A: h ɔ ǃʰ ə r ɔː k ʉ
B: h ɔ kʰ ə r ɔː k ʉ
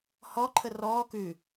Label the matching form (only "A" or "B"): A